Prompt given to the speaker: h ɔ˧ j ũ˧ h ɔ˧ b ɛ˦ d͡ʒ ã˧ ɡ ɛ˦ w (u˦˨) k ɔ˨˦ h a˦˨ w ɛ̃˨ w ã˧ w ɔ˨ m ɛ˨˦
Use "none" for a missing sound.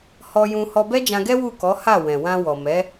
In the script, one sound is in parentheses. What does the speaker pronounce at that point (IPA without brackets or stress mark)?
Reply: u˦˨